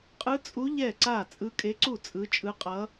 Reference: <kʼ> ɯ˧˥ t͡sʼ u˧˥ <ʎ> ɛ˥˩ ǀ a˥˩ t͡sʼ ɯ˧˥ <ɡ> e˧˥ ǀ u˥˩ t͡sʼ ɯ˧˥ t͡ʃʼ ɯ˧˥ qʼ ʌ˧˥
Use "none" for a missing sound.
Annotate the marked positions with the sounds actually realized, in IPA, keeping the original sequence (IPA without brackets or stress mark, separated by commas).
qʼ, ʎ, kʼ